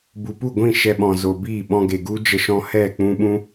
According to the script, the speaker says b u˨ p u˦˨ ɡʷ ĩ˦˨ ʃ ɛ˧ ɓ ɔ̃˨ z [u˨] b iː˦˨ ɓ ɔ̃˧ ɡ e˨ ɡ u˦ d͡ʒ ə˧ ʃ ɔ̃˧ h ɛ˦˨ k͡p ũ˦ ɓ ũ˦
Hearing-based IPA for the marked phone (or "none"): o˨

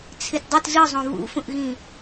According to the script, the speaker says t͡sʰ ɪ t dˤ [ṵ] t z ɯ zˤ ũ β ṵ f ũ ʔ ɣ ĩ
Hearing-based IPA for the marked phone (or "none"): u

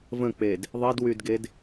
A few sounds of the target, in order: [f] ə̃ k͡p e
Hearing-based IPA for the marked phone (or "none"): v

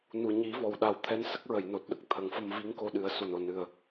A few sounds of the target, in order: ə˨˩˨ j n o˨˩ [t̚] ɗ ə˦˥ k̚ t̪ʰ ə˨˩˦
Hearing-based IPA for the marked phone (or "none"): t̚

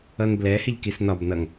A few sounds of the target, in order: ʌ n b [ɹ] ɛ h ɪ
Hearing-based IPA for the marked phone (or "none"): l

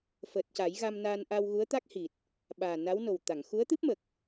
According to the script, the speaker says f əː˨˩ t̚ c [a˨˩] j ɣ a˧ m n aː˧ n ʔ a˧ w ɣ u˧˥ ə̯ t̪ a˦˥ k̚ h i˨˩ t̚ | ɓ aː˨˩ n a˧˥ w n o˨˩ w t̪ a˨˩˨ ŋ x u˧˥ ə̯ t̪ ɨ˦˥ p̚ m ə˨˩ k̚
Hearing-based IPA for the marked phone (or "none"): a˨˩˦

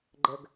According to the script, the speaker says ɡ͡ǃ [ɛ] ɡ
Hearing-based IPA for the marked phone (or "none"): ə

